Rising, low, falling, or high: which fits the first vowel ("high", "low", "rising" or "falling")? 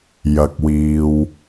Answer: low